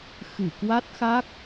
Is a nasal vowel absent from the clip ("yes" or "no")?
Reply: yes